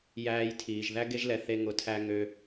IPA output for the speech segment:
j æː˨ j tʰ iː˩ ʒ ð æ˦ ɡ e˥ ʒ l ɛ˨ θ e˦ ŋ ʊ˦ tʰ æ˥ ŋ ø˥

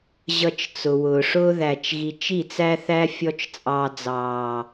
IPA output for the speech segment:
ʑ ʌ˨ t͡ʃ t͡s ʊ˨ w ʊː˨ ʂ ʊː˦ ð æː˨ t͡ʃ ɣ i˨ t͡ʃ i˦˨ t͡s æ˦ θ æ˦ fʲ ɔ˦ t͡ʃ t͡sʼ ɑː˦ d͡z ɑː˦

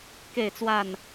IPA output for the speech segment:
k e˥˨ ɪ̯ t͡s w a˥˨ n

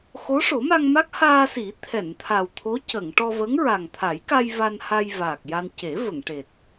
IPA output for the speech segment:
x o˧˥ ʂ o˨˩˦ m a˧ ŋ m a˦˥ k̚ h aː˧ s i˨˩˦ t̪ʰ ɛ˨˩˨ n t̪ʰ a˨˩ w t̪ʰ o˧˥ c ə˨˩˨ ŋ ʈ ɔ˧ v ə˧˥ ŋ ɹ a˨˩ ŋ t̪ʰ a˨˩˦ j k a˧ j v a˧ n h a˧ j v aː˨˩ k̚ j a˧ n c e˨˩˦ v ə˨˩˨ ŋ ʈ e˨˩ t̚

